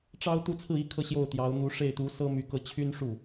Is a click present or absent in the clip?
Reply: absent